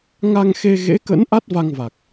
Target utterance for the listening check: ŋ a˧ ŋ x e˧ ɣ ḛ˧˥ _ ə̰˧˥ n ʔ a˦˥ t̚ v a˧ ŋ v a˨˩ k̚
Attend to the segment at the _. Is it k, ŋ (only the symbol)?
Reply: k